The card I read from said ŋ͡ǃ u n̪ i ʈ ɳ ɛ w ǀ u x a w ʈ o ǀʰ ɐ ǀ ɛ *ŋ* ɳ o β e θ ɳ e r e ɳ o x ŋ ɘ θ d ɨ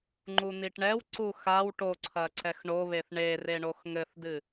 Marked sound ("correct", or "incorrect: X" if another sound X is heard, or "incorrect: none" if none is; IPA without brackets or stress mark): incorrect: x